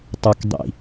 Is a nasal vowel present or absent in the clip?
absent